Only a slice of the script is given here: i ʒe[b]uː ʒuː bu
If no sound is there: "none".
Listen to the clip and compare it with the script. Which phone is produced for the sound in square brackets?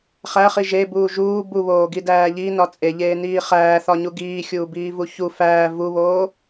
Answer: b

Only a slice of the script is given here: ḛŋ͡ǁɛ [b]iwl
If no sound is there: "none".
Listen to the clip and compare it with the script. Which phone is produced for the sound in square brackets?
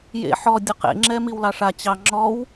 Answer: m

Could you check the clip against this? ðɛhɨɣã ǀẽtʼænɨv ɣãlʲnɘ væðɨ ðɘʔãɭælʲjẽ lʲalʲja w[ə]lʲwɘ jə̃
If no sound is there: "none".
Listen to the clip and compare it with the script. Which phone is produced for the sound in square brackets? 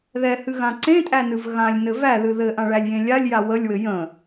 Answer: ə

